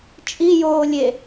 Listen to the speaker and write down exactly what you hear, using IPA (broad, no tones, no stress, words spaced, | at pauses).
t͡ʃʼijoːlʲe